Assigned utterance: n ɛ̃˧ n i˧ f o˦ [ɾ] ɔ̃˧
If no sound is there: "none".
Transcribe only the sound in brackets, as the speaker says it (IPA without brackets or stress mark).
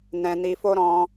ɾ